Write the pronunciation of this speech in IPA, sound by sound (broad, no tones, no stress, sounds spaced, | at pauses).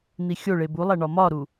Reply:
n̪ i xʲ o ɭ e b u lˠ æ ɳ ɒ m ɒ ɾ u